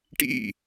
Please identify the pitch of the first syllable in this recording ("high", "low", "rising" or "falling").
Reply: falling